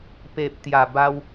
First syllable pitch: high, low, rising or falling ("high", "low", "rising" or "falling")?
low